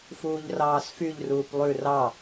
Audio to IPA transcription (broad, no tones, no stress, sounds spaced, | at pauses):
f uː ʎ r ɑː s f y ʎ r uː p lˠ ʉ r ɑ